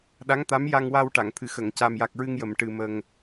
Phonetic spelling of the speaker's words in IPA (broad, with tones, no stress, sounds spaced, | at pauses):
ɗ a˧˥ ŋ t̪ a˧˥ m j a˧ ŋ w a˧ w ʈ a˨˩˨ ŋ t̪ʰ ɨ˨˩˦ x ə˨˩˨ ŋ c a˨˩ m j a˨˩ k̚ ɹ ɨ˧ ŋ j ə˨˩˨ m ʈ ɨ˨˩ m ə˨˩ ŋ